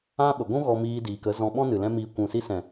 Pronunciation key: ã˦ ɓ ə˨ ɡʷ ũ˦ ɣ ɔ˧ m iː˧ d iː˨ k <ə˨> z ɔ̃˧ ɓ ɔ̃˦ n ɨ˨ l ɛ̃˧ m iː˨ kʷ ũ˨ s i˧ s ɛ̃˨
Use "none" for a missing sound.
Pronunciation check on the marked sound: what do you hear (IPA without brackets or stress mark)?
ə˨˦